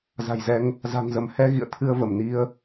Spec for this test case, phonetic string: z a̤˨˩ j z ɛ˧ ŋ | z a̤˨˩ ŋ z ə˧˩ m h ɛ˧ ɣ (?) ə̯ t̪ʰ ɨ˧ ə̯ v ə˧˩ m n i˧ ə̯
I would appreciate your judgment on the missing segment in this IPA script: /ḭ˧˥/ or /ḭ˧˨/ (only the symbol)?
ḭ˧˨